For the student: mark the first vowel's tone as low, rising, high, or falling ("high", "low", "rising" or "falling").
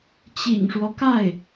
low